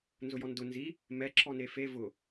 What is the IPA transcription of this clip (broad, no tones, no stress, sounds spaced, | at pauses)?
n z ʊ j ɔ n d ʊ n z i | m ɛ ǁʰ ɔ n e f e v ʊ